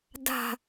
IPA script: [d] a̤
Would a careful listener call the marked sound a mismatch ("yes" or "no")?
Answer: no